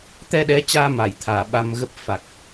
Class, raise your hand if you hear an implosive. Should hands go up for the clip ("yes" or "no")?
yes